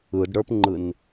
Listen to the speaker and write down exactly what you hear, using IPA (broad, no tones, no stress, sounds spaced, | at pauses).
ɯ d ɽ ə˞ p ŋ͡ǃ ɯ n